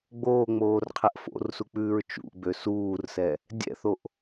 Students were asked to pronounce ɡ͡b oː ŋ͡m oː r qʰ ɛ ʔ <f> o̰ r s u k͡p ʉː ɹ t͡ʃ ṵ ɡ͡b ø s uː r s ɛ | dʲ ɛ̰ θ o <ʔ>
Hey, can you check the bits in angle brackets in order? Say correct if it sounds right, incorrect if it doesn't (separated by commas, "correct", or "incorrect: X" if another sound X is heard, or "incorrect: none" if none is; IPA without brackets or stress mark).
correct, correct